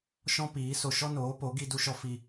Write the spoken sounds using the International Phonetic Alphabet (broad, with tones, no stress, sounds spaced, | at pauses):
ʃ ɔ̃˦ p iː˨˦ s o˧ ʃ ɔ˦ n oː˨˦ p o˨˦ ɡ i˦ d u˦ ʃ ɔ˦ f i˧